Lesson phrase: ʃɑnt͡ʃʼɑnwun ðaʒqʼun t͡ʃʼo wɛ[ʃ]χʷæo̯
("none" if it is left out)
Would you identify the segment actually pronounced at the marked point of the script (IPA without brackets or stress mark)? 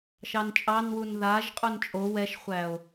ʃ